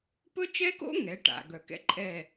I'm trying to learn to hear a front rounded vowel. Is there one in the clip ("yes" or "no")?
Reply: yes